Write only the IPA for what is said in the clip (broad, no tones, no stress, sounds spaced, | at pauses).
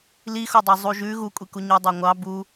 l i x o dˤ ɜ zˤ u ʒ ʉ ɣ u kʷʼ i k u ɲ ɔ dˤ ɜ ŋʷ ɑ b u